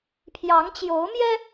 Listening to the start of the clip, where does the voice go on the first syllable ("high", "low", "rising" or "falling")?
rising